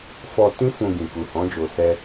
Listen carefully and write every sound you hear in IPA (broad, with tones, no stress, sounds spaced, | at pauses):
f ɔ˧ t ĩ˦ f ũ˧ ɡ ĩ˨ k u˨ h ɔ̃˨˦ d͡ʒ o˧ s ɛ˦